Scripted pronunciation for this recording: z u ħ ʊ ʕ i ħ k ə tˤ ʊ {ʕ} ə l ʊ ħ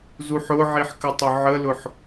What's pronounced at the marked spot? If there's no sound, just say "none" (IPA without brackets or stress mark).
ʕ